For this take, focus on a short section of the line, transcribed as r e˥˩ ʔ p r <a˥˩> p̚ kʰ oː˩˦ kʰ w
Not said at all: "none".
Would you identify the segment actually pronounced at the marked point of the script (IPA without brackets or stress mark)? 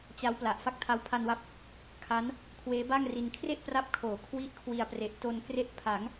a˦˥